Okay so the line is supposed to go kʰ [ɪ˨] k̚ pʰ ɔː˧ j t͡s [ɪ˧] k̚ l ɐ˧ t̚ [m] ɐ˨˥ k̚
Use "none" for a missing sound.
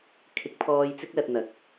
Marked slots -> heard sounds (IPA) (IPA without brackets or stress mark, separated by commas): ɪ˨˥, ɪ˥, n̪